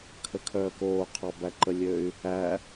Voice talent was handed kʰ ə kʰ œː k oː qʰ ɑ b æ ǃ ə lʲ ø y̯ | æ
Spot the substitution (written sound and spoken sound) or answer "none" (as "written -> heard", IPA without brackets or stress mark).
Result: none